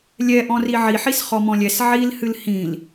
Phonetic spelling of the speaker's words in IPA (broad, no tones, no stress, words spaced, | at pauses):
lʲɛʔɔ̃ri ʕiħis χɔmɔ̃lʲɛs ʕil hɨlhĩl